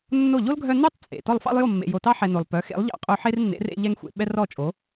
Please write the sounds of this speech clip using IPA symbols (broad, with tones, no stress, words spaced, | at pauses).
nːo˥˩ ʎo˥lɡʱœ˧ nœ˥tˤt͡sʼḛ˩ tɔ˥˩lˠfɑ̰˥lˠjo˥˩mːḛ˩ jo˩tɑ˥ħɛ˩ no˩lˠpœ˩˥ xḛ˩˥lˠʎɑ̰˧ qʼo˧ħe˥rnːḛ˩˥ rḛ˧ ʎɛ˧ŋxʷḛ˩ ɓɛ˥rɔ˥˩t͡ʃʼo˩˥